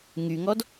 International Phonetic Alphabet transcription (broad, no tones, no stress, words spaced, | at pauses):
ŋyŋɔd